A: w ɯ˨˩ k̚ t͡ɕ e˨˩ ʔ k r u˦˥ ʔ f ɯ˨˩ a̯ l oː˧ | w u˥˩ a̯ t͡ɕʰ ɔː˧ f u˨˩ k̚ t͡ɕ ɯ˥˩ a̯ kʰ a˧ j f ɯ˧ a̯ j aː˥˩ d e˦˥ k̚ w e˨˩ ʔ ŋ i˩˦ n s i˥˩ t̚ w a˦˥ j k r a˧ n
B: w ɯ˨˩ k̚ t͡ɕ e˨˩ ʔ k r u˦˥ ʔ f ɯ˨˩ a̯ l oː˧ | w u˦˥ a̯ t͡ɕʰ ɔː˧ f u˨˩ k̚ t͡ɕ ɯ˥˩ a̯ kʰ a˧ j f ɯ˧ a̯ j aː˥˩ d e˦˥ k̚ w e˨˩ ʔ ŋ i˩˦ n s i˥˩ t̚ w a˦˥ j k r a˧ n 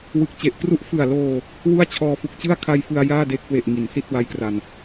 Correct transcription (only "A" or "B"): A